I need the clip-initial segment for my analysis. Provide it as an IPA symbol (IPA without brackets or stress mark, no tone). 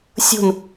sʲ